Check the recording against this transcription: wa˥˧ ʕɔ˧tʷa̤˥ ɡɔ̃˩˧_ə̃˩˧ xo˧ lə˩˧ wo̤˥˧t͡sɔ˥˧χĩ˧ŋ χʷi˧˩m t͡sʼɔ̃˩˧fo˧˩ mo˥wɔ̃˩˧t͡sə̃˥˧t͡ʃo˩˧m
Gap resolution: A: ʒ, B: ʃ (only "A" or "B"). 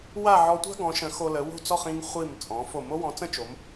B